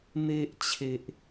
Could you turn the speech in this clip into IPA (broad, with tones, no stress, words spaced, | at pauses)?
n̪e˦ʔ t͡ɕʰe˦ʔ